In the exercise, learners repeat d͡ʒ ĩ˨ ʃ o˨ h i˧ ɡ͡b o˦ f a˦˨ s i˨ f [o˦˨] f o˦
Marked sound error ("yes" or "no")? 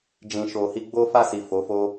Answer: yes